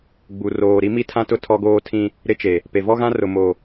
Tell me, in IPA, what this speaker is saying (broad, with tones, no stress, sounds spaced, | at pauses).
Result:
ɡ͡b u˨ r oː˨ ɾ i˦ m i˦ tʰ ã˦ t ʊ˦ tʰ ɔ˦ ɡ oː˦ tʰ ĩ˦ | ɾ ɪ˦ t͡ʃ e˨ | p e˨ v ɔ˦ ɣ ã˦ r ʊ˨ m o˨